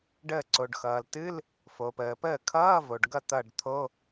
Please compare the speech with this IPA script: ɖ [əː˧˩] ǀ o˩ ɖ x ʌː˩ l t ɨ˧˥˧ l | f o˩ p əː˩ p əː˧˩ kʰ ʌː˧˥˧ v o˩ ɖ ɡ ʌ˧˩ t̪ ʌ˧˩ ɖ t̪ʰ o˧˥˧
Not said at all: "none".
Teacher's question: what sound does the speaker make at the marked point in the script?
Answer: əː˧˩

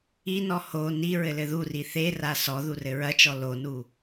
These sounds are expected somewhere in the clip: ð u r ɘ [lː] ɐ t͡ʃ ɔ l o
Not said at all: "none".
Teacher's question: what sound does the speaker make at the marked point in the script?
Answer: ɹ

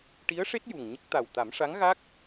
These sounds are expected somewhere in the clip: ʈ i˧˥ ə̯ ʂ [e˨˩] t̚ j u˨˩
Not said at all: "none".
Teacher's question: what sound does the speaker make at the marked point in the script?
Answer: e˦˥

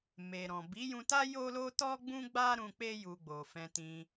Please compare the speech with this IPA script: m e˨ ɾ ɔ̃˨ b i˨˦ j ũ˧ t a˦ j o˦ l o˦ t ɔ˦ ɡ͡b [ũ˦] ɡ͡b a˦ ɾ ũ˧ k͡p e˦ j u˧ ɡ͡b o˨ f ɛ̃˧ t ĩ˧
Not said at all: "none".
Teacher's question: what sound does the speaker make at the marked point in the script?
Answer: ũ˦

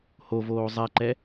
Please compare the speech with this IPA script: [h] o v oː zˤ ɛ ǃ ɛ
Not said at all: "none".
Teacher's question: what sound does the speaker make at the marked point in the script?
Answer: h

